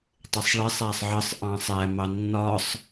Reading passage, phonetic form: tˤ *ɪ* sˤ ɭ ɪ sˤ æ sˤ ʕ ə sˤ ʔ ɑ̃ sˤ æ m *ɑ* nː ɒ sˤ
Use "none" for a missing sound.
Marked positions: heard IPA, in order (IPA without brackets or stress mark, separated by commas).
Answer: ɪ, ɑ